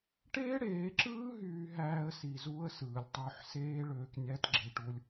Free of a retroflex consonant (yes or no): no